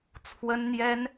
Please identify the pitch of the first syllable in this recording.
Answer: high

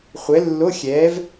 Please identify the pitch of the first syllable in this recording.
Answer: rising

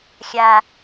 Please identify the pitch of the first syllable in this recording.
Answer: low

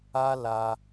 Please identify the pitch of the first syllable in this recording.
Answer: high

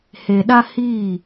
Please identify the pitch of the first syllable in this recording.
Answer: low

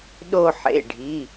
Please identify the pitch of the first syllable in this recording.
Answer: falling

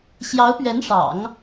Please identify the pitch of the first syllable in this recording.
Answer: rising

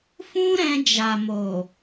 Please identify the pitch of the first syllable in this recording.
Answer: high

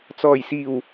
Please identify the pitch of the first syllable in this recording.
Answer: low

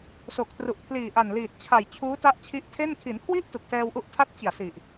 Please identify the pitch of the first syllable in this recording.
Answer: low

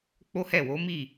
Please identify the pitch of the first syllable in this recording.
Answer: high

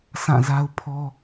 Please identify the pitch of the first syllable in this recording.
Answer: falling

